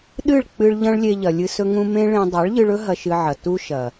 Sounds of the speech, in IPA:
ɗ ɨ˦˨ ɭ k͡p ɨ˧ ɭ ʎ ɐ̃˦ ɭ lʲ e˧ ʎ ɐ˨ lʲ ɨ˧ s ɵ˦ ŋ ũ˦ m ẽ˦ ɭ ẽ˧ dˤ a˨˦ ɭ ʎ ɨ˧ ɭ ɵ˦ ɦ ɐ˧ ʃ ɨ˧ ʕ ɐ˨ t u˦ ʃ ɐ˨

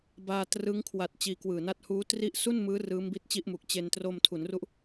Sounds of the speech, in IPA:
b aː˧ t r ɯ˦˥ ŋ kʰ w a˨˩ t̚ t͡ɕ iː˧ k w ɯː˨˩ n a˥˩ t̚ h uː˦˥ t r i˦˥ ʔ s u˥˩ n m ɯː˦˥ r ɯː˦˥ m b i˦˥ t̚ t͡ɕ i˥˩ ʔ m u˨˩ k̚ t͡ɕ e˧ n t r o˧ m tʰ u˩˦ n r u˦˥ ʔ

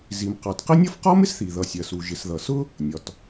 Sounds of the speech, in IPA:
z i˩ m q ɑ˩ t q ɪ˥ nʲ ʌ˥ f q ɒ˥ m ɪ˥ s θ i˩ ð ʌ˩ sʲ ɜ˩ s u˩ ʒ ɪ˩ s ð ʌ˩ s ʊ˥ | nʲ ɒ˩ t

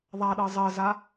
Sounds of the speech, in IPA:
ðˤ a ɗ ɤ zˤ ɜ z a

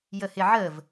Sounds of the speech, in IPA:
j ə h ɪ ʕ ə v

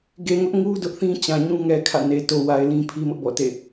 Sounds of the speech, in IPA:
ɡ e˨ ŋ ʊ˦ ʔ ŋ u˦ d ʊ˦ ʔ θ ĩ˦ t͡ɕ ã˨ ɲ ũ˦ ŋ ɛ˨ kʰ ä̰˦˨ n e˨ t o˨ w a˨ ɪ̯ l ĩ˦ pʰ i˦ m ʊ˦ ʔ b ɔ̰˦˨ t ḛ˦˨

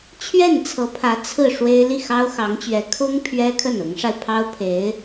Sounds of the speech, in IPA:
t͡ɕʰ ɥ ɛ˥˩ n t͡sʰ ɤ˧˥ pʰ ä˧˥ t͡sʰ ɹ̩˥˩ ʂ w e˥ ɪ̯ l i˥˩ x ɑ˥ ʊ̯ x ɑ˧˥ ŋ t͡ɕ ɥ ɛ˧˥ kʰ ʊ˥ ŋ pʰ ɥ ɛ˥ kʰ ə˥˩ n ʊ˧˥ ŋ ʂ a˧ ɪ̯ pʰ ɑ˥ ʊ̯ pʰ e˧˥ ɪ̯

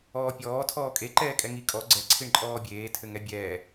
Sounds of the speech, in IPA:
ɔː pʲ ɔː tʰ ɔː kʼ e ǃ ɛː kʼ ɛ ŋ i kʼ ɔ ɡ͡ǀ ɛ ǀʰ i ɳ ǃʼ ɔː bʲ eː tʰ ɘ ŋ ɛ bʲ ɛː

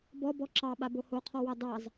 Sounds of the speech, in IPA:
b ɔ b ɔ ǁ ɑ ɓ a b o h o qʰ ɔ w ɑ d ɑ z

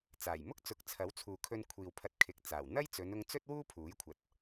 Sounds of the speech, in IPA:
t͡s aː˨˩ j m ʊ˥ k̚ t͡s ʊ˨˥ k̚ t͡sʰ ɐ˨˥ w t͡sʰ uː˨ kʰ ɵ˧ n kʷʰ iː˨ w pʰ ɐ˧ t̚ kʰ ɪ˨˥ k̚ t͡s aː˨˩ w n̪ ɐ˥ j t͡s ɵ˨˧ n ʊ˧ ŋ t͡s ɵ˥ t̚ w uː˥ pʰ uː˨˥ j kʷʰ ɐ˨ t̚

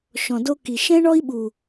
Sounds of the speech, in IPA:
ʃ ɔ̃˨ d o˦ k i˨ ʃ ɛ̃˦ ɳ ɔ˦ i̯ ɓ u˨

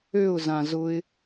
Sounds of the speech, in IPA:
ø ʊ̯ z ã z ʊ ɪ̯

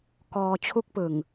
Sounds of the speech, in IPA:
k ɔː˧ t͡ɕʰ u˦˥ k̚ p ɯ˨˩ ŋ

